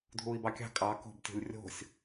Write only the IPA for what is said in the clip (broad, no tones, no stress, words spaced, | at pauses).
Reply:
dʱuːi̯bɑkʲɑ̤ kʼɑ ko̤btʲo̤lʲ rʲo̤sʲ